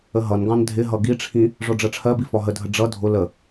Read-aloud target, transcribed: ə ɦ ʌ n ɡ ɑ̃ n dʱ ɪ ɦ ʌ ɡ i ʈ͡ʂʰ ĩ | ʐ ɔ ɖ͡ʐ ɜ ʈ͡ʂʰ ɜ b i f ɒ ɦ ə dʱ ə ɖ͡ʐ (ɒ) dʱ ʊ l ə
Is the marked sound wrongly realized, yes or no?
yes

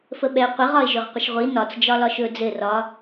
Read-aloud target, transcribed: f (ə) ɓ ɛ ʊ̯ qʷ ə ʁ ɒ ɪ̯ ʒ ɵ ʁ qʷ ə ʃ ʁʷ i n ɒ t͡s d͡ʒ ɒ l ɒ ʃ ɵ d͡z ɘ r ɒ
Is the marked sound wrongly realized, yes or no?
no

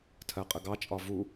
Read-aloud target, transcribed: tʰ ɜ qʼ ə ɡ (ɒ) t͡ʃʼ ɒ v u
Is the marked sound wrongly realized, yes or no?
yes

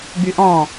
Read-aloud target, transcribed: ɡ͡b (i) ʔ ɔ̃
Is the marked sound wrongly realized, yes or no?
yes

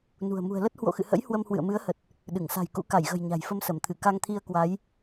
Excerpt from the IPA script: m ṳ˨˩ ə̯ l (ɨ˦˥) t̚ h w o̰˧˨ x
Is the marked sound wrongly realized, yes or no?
yes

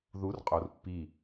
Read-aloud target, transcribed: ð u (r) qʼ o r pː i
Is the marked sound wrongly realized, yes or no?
no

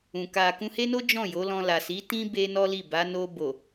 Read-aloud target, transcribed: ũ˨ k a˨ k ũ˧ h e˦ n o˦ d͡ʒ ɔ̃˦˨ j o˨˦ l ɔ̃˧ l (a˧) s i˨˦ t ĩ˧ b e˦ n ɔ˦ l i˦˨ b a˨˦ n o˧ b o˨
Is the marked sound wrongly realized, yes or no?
yes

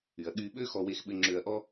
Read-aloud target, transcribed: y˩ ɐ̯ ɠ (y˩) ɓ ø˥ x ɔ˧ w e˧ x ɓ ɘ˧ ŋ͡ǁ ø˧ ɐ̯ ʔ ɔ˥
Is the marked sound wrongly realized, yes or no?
yes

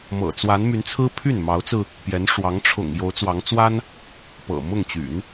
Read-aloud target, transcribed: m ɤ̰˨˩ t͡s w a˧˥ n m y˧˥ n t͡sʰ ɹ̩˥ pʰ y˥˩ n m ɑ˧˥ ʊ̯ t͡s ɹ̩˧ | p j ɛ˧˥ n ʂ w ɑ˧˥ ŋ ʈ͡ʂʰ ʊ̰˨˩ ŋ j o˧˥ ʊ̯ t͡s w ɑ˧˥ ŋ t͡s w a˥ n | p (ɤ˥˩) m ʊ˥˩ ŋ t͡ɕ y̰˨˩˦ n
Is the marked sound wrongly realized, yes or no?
yes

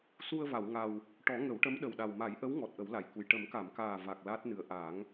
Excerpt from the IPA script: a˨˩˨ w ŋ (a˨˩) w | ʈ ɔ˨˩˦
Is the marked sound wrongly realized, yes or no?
no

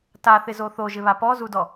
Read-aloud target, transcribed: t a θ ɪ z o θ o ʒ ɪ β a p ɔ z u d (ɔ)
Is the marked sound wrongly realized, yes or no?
no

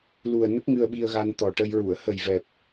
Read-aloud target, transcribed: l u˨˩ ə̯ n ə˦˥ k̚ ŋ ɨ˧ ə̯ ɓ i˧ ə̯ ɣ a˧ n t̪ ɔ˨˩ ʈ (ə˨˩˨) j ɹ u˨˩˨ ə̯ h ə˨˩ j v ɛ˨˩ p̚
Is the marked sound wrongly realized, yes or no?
yes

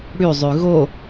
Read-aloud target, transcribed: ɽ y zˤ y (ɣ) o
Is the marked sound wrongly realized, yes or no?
no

